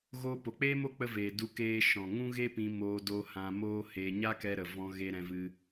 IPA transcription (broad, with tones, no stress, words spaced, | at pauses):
ɣoː˧po˨k͡peː˦mo˦ k͡pə˧veː˨ du˧keː˧ ʃɔ̃˨ŋũ˦ɣe˦pĩ˧ moː˧do˧hã˧ moː˦he˧ ɲa˦kɛ˧ɾə˨ vɔ̃˦ ɣe˧ɾɛ̃˧vɨ˧